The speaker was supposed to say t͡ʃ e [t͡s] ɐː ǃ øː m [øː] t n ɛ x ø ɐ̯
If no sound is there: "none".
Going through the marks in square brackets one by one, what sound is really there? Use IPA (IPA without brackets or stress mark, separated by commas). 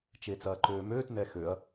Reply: t͡s, øː